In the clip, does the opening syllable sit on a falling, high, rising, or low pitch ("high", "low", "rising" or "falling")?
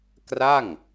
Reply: falling